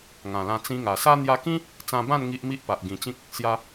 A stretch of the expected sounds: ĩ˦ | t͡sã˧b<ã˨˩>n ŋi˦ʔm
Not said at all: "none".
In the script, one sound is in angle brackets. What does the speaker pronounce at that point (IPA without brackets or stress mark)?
ã˥˧